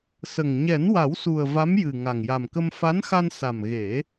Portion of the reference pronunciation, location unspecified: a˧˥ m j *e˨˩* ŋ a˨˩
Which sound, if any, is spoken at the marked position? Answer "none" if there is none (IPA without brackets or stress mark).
ɨ˨˩